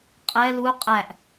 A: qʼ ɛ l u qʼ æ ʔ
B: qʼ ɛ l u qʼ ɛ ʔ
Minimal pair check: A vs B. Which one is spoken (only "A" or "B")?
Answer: A